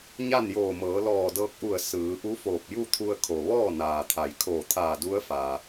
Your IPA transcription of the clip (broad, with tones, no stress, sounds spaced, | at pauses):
ɲ a˥˨ n j oː˧˩ m ɤː˩˧ l ɔː˧˩ d ɤː˧ k̚ ʔ u˧˩ ə̯ s ɯː˩˧ ʔ u˧˥ f oː˧˩ p̚ j u˥˨ t̪ʰ u˧ ə̯ kʰ o˩ ʋ ɔː˥˨ n aː˩ t̪ʰ a˩ j kʰ oː˧˩ t̪ʰ aː˧˩ d u˧˥ ə̯ f a˩